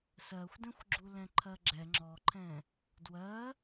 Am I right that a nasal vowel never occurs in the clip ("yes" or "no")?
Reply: no